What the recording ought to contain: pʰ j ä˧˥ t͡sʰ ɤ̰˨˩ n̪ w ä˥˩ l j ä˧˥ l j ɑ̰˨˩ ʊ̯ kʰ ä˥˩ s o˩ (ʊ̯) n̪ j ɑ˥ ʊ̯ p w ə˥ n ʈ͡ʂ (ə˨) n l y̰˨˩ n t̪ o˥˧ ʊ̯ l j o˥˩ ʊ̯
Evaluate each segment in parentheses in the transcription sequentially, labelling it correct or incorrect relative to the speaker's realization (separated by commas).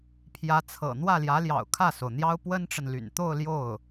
correct, correct